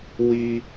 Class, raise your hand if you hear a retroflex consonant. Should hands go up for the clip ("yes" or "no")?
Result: no